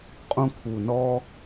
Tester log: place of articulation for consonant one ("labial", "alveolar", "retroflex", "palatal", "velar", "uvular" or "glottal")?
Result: uvular